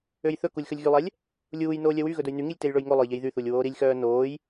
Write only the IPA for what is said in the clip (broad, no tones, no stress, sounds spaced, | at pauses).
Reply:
ø j θ ɵ k u lʲ x ɵ lʲ ɣ y lˠ ɛ lʲ | lʲ uː j n oː lʲ œ w y ɣ ɵ d ɵ j n y ŋ i lʲ t e j ɭ ɵ j ŋ o lˠ ɵ j ʎ e j ð y θ u lʲ w oː ɾ i lʲ x œː n oː j